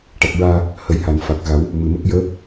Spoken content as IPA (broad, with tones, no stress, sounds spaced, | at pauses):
ʈ a˨˩ k̚ ɹ aː˧ | h ə˨˩˦ j h a˨˩˨ n f a˨˩ k̚ ɣ a˨˩˦ w | m ɨ˨˩ m ə˦˥ k̚ j əː˧˥